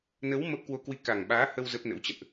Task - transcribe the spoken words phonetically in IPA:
nə˨˦w mə˦˥p̚ kwo˧kwi˧ ka˨˩ŋɓaː˨˦hə˧w zə˦˥p̚nə̰˧˥w t͡ɕə̰˧˨nʔ

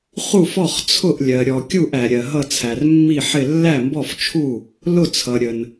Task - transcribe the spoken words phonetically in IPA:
χu˥˩fɔ˥˩χt͡sʰʊ˥˩ʔ lʲɜ˩ ɾʲɔ˩kʲu˥˩ʔ æ˩ɾʲɜ˩ ɦʌ˥˩t͡sʰæ˩rmːi˥˩ħɪ˥˩ lːæ˥˩mbɔ˥˩ft͡ʃʰu˥˩ | lʊ˥˩t͡sʰʌ˩ɾʲə˩n

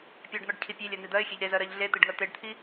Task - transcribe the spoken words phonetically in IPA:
pʲɜɖn̪ɔɖcʰi pʲelʲɜn̪i d̪ɜɪ̯xʲeʎ ɾezɜɾɜʎ ɮet̪iɖŋɜ t̪eɖt̪ʰi

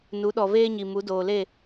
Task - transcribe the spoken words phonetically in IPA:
nu˨˦ɗɔ˨veː˦ɲi˨ mu˨˦doː˨le˦˨

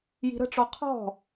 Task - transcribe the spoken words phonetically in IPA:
ji̤ɾə̤ʈ͡ʂɔ qʰɔ̤

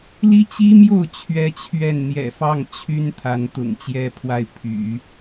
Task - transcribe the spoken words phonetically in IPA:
li˥t͡ɕi˥mjo˥˩ʊ̯ t͡ɕʰɥɛ˥t͡ɕʰɥɛ˥˩n n̪jɛ̰˨˩fɑ˥˩ŋ t͡ɕʰy˥n t̪ʰa˧˥nt̪ʊ̰˨˩ŋt͡ɕjɛ˥pʰwa˥˩ɪ̯ pʰy̰˨˩˦

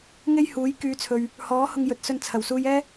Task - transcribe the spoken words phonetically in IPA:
ŋe˥jhuː˨˥j kyː˨˧t͡sʰɵ˨ɥ | hɔː˨˥ hʊ˧ŋjɵ˨˥t̚sɵ˧n t͡sʰɐ˨˩wsuː˧j ɛː˥

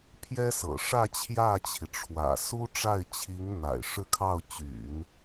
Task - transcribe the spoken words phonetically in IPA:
pʰjɛ˥sɤ̰˨˩ ʂä˥˧ t͡ɕʰjä˥˩t͡ɕʰi˩ʈ͡ʂʰwä̰˨˩ su˥ʈ͡ʂa˥˩ɪ̯t͡ɕʰi˧˥ŋn̪a̰˨˩ɪ̯ ʂɻ̩˥˧kʰɑ˥˩ʊ̯t͡ɕy̰˨˩˦n

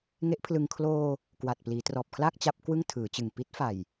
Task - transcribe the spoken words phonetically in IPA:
ŋe˦˥ʔpʰlɯ˧ŋ kʰloː˧ | kwa˨˩t̚ pliː˩˦trɔː˨˩p̚kʰlaː˥˩k̚ t͡ɕa˦˥p̚ kwɯ˥˩ŋ tʰɯː˩˦t͡ɕɯ˨˩ŋ pi˦˥t̚fa˨˩j

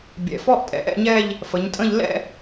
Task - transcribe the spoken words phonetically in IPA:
bʲɛ̰˩˧fɔ˥ʔtʼɛ̰˧ ʔɛ̰˥˧ɲɛ˥˧ʎ | fə˩˧ɲtʼə̃˥˧ʎ lɛ̰˥˧

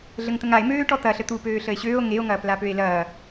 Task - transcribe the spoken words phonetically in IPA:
ɮəŋt̪əŋae̯ møːʈɔt̪ɐɬə t̪u pøːɬəe̯ɕøːo̯ ŋeo̯ŋɐːplapøe̯ lɐː

